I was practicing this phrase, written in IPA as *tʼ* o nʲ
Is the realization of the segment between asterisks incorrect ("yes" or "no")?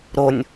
yes